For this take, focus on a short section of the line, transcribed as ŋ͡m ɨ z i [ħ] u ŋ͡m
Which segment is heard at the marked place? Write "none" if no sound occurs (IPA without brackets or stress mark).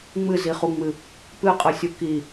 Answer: χ